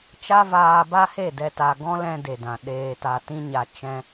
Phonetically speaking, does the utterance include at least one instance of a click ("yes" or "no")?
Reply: no